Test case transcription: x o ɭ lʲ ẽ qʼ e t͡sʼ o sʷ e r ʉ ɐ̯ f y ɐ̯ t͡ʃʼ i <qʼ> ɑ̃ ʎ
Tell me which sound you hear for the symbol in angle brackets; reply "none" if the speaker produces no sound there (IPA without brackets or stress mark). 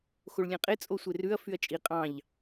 qʼ